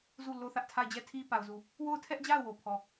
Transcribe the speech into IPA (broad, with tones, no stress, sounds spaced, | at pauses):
z u˦˨ l o˦ θ ä˦ ʔ tʰ a˦˨ ɪ̯ d͡ʑ ɛ˦˨ tʰ i˦ p a˨ ʊ̯ z u˨ | w o˦˨ ʊ̯ tʰ ɛ˦ ʔ d͡ʑ a˦˨ ʊ̯ w o˦ pʰ ɔ˦˨